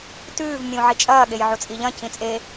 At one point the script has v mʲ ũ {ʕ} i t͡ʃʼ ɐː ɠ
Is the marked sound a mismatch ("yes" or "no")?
no